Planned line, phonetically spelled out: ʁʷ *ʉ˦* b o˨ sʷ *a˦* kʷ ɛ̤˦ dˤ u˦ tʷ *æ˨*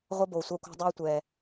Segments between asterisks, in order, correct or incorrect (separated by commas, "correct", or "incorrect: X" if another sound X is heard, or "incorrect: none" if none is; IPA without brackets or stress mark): incorrect: ə˦, correct, incorrect: ɛ˨